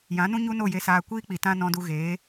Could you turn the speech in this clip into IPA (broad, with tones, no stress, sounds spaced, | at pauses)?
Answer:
j ã˨˦ n ũ˦ ɲ u˦ n o˦˨ j e˧ s aː˧ kʷ iː˦ k͡p i˨ t ã˧ n ɔ̃˧ d u˧ ɣ eː˨˦